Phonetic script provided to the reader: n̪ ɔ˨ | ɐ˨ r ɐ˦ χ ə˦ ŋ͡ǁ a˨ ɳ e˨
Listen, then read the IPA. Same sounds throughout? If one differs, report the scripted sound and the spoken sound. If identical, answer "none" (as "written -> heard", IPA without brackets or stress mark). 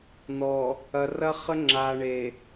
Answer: none